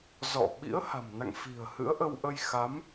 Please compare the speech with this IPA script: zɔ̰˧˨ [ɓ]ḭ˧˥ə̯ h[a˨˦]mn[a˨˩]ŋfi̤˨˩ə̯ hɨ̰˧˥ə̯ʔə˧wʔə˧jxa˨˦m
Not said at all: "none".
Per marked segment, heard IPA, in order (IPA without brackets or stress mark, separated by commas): ɓ, a̤˨˩, a̰˧˨